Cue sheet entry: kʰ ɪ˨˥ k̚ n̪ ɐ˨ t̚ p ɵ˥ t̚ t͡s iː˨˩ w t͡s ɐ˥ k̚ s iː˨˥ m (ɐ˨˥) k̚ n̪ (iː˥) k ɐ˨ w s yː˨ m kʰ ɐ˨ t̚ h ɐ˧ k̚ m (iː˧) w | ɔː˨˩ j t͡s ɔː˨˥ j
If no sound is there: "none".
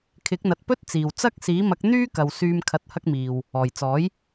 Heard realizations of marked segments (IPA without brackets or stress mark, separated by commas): ɐ˨˥, yː˥, iː˨